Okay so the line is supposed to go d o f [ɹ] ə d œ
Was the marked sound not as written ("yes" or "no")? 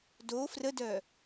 yes